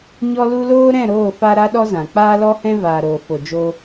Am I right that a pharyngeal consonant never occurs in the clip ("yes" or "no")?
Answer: yes